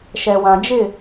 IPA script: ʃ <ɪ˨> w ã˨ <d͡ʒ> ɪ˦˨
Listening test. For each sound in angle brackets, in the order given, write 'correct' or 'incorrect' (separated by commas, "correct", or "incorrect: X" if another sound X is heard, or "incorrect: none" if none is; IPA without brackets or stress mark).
incorrect: ɛ˨, correct